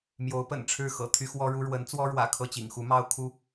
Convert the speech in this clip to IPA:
mjo˧˥ʊ̯pə̰˨˩nʈ͡ʂʰɻ̩˥˩ xɤ̰˨˩ t̪ʰy˥xwɔ˥ɻu˥ ɻwə˧˥nt͡swɔ˥ɻwä̰˨˩ kʰɤ˥˩t͡ɕḭ˨˩ŋxu˧˥mɑ˥ʊ̯ kʰu˥

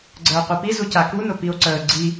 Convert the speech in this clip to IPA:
ɡ͡ǀəːo̯qʷipi zucaku nʊpio̯ǀəː ɡ͡ǀi

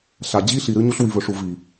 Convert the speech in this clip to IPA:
ɬa˨d͡ʑi˦ ɬi˨ɾɨ˦ɲu˦ɬ wi˨vɵ˨ʂu˨ vi˨

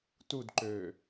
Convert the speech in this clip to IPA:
tudǃøː

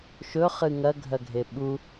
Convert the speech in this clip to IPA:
ʃɵ χɨŋɐɡʱɐɡʱe ɓu

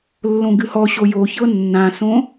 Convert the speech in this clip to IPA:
lːõɡɨhɔɕo joçɤ nːãsõ

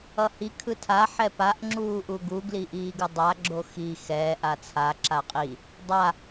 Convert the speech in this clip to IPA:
ʌhi kʰɯtʰa ħɛpaʔ ŋ͡ǁuːʔuɡu ɡliʔiːɡɯdˤa ɡ͡ǁoxi xɛ ʔat͡sʰa ǁaqʼi | dˤa

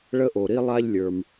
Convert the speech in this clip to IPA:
ɭə˥ʔo˩ɾi˥ lˠa˥ʎlʲə˞˩m

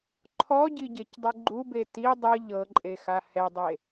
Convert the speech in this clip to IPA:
ǃʰɔɟiɟecdˤɯ ɡ͡ǃube ti dˤɯ ʎɤǃʼexa hɛdˤe

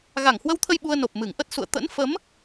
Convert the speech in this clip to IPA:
ɣa˧˩ŋhwə˧wt̪ʰə˧j ɓu˧ə̯no˨˩p̚mɨ˧˩ŋʔə˦˥t̚ sṵ˧˨ə̯ t̪ə̰˧˥nfə˨˦m

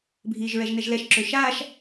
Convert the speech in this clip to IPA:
bʱiːʒɹɛʒnɛʒlɛʃ ǁøʃaːʃ

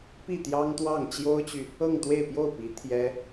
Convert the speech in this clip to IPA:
pi˥˩t̪jɑ˥ŋt̪wɑ˥˩ŋ t͡ɕjo˥ʊ̯t͡ɕy˨ | ɤ˥˧ŋt̪we˥˧ɪ̯pjo˥˩ʊ̯pi˧˥ t̪ʰjɛ˥

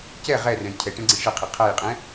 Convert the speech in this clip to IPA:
cɛ ʁɛrɛ̃j cʰɛʈɛ̃ɡ͡ǀĩ ʂəqʰɪ qʰajqʼɛ̃

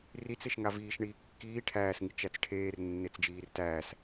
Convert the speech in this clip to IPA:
rit͡s eʃŋaviːʃɳiː kːiː ʈʰæːsŋi t͡ʃæt͡sʈʰeːr nːet͡sd͡ʒiːrtæːs

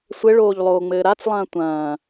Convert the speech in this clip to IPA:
sʷɘɭoːʎlˠoːŋ͡mɘː ɾat͡slˠɐ̃ː tʷɐ̃ː

